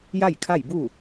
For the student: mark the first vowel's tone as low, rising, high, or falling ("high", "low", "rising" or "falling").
falling